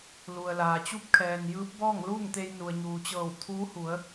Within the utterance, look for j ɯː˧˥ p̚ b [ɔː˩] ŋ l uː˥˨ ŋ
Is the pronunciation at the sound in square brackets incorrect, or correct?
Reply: incorrect